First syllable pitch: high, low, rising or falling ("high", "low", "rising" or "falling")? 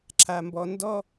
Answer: low